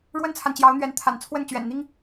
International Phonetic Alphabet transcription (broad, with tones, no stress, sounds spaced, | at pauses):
ɻ w ə˥ n t͡sʰ a˨ n t͡ɕ j ɑ˧˥ ʊ̯ n̪ ɥ ɛ˧˥ n t̪ʰ a̰˨˩ n t͡sʰ w ə˥˩ n t͡ɕ ɥ ɛ̰˨˩ n n̪ i˥ ŋ